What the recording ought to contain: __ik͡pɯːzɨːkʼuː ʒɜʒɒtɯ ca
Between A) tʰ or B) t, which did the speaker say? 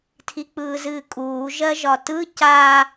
A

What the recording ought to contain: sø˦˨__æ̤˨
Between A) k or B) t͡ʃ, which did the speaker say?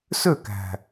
A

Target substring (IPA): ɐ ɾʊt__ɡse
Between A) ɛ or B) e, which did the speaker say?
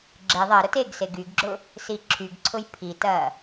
B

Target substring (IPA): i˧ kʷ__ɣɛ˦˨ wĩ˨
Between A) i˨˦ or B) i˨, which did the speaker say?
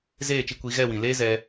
A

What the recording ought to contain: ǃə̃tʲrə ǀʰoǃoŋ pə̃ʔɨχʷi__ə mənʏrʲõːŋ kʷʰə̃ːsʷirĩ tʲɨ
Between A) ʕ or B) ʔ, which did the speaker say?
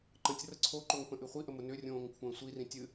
B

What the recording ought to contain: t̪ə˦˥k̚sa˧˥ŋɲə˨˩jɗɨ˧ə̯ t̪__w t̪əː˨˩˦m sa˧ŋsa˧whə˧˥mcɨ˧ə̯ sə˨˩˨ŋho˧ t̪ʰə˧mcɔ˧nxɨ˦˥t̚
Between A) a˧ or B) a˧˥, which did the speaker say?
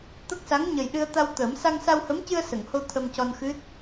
A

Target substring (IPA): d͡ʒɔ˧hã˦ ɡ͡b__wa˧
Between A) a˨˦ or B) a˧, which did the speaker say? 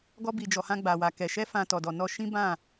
B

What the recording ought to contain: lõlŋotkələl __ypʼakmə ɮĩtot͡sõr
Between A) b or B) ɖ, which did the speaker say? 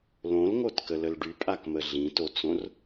B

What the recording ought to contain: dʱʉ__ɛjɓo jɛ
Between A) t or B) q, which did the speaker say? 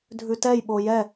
A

